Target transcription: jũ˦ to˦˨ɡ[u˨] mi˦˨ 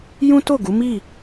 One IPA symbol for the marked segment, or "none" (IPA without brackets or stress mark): u˨˦